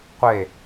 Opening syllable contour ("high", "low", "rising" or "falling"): falling